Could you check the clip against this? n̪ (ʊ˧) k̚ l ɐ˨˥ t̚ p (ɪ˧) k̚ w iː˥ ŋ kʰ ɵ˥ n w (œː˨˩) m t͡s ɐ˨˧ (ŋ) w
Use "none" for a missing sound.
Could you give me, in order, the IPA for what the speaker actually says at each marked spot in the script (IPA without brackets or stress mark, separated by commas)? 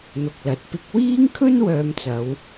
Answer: ʊ˧, ɪ˧, œː˧, none